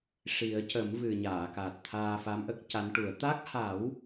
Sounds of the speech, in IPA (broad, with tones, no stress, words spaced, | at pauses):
ʂi˨˩˦ə̯cə˨˩˦mvɨ˨˩ ɲaː˨˩˨ka˨˩t̚ t̪ʰaː˧fa˧˥mʔə˦˥k̚ ca˧˥nʈu˨˩˦ə̯ t̪a˦˥k̚ha˨˩˦w